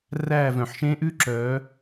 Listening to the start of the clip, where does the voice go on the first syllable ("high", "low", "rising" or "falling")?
falling